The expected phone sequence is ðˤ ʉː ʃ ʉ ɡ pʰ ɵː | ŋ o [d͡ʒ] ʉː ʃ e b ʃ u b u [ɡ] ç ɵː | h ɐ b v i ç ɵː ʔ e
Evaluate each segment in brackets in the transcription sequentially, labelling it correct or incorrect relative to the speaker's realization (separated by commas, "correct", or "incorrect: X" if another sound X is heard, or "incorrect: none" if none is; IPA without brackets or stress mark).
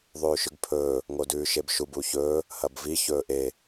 incorrect: d, incorrect: none